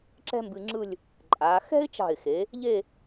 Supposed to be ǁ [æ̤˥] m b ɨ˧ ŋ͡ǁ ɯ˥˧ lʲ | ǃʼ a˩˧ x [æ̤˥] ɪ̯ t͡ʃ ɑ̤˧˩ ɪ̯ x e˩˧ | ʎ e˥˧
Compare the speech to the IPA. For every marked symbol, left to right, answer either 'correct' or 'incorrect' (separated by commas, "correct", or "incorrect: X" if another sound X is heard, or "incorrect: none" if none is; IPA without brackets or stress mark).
incorrect: ɛ̤˥, incorrect: ɛ̤˥